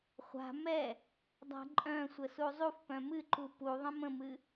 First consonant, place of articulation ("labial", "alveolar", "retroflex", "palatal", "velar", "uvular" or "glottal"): uvular